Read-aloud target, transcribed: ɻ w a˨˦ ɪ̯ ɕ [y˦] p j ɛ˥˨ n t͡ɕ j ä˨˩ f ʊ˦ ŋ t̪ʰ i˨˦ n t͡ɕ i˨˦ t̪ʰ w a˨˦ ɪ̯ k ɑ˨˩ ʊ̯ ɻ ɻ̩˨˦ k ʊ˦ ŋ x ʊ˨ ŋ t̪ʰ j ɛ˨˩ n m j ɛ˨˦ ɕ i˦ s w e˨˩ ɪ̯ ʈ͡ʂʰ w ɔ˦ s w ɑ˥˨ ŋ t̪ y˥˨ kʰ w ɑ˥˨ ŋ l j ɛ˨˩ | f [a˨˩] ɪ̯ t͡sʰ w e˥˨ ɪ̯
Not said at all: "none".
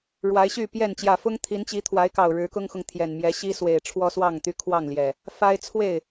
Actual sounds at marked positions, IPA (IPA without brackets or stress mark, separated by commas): y˥˨, a˦